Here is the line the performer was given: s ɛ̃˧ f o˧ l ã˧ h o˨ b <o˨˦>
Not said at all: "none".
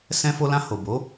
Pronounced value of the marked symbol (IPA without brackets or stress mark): o˨˦